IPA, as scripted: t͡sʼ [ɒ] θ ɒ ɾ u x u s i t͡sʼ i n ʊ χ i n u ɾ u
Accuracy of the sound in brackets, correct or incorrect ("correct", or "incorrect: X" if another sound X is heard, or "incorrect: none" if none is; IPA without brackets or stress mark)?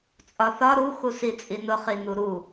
correct